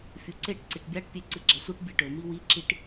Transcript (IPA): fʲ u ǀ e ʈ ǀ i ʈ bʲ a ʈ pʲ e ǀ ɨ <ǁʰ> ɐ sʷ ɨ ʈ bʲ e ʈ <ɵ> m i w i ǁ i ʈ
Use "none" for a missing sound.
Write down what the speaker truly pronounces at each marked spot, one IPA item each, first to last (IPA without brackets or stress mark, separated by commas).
ɡ͡ǁ, ɵ